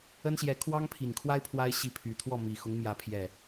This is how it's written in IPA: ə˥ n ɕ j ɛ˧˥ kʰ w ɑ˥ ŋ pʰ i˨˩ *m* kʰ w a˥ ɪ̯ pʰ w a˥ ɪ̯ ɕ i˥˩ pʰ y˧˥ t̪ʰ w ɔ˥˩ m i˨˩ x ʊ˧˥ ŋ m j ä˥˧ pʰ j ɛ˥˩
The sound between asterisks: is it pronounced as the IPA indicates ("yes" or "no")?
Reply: no